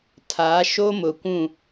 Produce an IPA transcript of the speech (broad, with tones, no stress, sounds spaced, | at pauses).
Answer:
tʰ a˨˦ ʃ o˦ m ʊ˨ kʷ ũ˦˨